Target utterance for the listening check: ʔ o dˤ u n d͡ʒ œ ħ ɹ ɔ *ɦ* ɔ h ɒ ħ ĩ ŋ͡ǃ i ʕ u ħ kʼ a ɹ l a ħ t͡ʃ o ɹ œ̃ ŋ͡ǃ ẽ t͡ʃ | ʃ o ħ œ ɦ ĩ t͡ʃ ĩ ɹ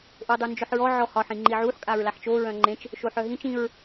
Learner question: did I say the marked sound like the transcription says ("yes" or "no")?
no